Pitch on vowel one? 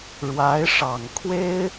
rising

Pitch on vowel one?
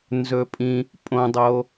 low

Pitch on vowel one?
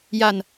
low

